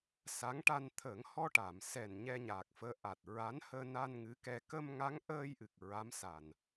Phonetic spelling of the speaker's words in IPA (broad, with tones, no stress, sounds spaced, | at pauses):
s a˧˥ ŋ ʈ a˧ n t̪ʰ əː˨˩˦ ŋ h ɔ˧ ʈ a˨˩˨ m s ɛ˨˩ n ɲ ɛ˧ ɲ aː˨˩ k̚ f əː˧˥ ʔ a˨˩ t̚ ɹ a˧˥ n h əː˧ n a˧ n ŋ ɨ˧˥ k ɛ˧ k ə˧ m ŋ a˧˥ ŋ ʔ əː˧ j ʔ ɨ˨˩ k̚ ɹ a˧˥ m s a˨˩ n